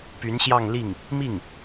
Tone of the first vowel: rising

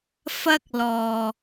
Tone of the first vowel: high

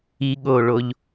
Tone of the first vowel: low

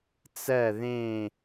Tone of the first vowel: falling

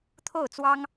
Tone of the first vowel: falling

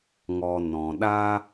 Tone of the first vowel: low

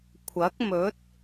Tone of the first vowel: rising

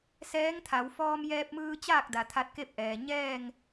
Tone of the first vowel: rising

